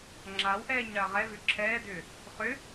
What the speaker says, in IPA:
ŋ͡ǁ a w ʔ ɛː ɲ ɳ ɐː ʁ ɛ v ʏ ǁʰ ɛː d ʏː | χ ʏ

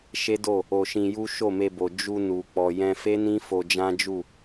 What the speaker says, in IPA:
ʃ e˦ d o˦˨ | o˧ ʃ ĩ˧ j u˦ ʃ o˦˨ m e˧ b o˨ d͡ʒ u˧ n u˨ k͡p ɔ˨ j ɛ̃˧ f e˦ n ĩ˦ f o˧ d͡ʒ ã˦ d͡ʒ u˦˨

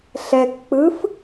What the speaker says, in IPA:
ɬ ɛ k k͡p ɯ f

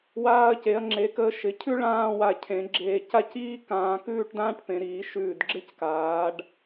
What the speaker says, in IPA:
w aː˧ ɐ̯ c e˩˧ ɐ̯ ŋ͡ǁ e˩˧ k əː˧ ʃ ɪ˩˧ cʰ ʉ˥ ɭ ãː˥˧ w a˧˩ cʰ ẽ˩˧ ɡ͡ǁ eː˧ c a˥˧ c iː˥ k ãː˧ k ʉː˥˧ ʈ d ãː˥ ʈ p ẽ˩˧ ɾ iː˩˧ ʃ ʉː˧˩ d ɡ͡ǁ ɪ˥˧ c k aː˩˧ ɖ

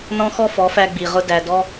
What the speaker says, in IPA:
n ɔ̃˦ x ɔ˦ f ɔ˨˦ f æ˧ ɡ͡b i˨ ʁ ʊ˧ d æ˨ d ɔ˦

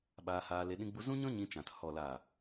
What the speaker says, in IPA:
ɓ aː˧ h aː˧ l e˧ ɗ ĩ˧ ɡ͡b u˧ z ũ˦ ɲ ɔ̃˦ ɲ ĩ˧ t͡ʃ ã˨ t h ɔ˨ l aː˨

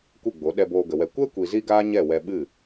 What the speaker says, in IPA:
kʷ ɨ˦˨ ɡ͡b o˨˦ ɗ ɛ˧ b oː˧ ɡ ə˨ w ɛ˧ kʷ ɛ˦ kʷ i˨ z i˦ ɡ aː˦ ɲ ɛ˦˨ w ɛ˧ ɓ ɨ˦˨

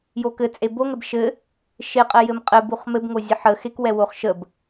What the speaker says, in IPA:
j o k ɘ t͡sʼ e b o ŋ ɛ b ʃ ɘ | ʃ e qʼ ɛ j ɘ m qʼ ɘ b u χ m ɘ b ŋ o zʲ ə ħ ə x e k w ɛ w o χ ʃ ə b

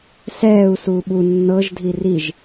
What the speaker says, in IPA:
s ɛː u̯ s uː ɓ u nː ɤ ʒ dʱ i r i ʒ

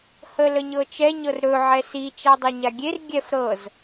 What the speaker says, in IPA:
h ə l ə ɲ ɤ t͡ʃ ɛ ɲ ɤ r ɾ ɵ ʕ ɛ s i t͡ʃ a dˤ ə ɲ a ɡʲ e r ɡʲ ɛ f ɾ ɤ z

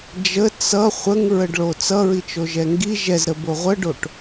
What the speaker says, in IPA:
d͡ʒ ə t͡s ʌ χʷ ə ŋ ɹ ə ɖ ɭ o t͡s ʌ ɹ i t͡ʃ o ʒ ɛ ŋ ɡ i ʒ ɛ z ɾ ə b o ʁʷ ə ɖ o ʈ

